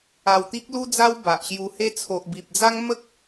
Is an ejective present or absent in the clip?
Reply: absent